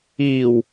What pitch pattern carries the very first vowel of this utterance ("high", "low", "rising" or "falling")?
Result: low